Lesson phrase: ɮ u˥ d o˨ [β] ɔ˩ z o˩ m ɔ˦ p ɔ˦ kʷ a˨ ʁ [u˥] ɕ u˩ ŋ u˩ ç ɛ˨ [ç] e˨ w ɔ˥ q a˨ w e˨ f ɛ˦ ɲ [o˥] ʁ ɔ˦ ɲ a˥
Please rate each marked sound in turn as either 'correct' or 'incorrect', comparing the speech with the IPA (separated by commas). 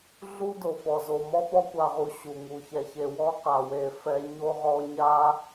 incorrect, incorrect, correct, incorrect